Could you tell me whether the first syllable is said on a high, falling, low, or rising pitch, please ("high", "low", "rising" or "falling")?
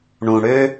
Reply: low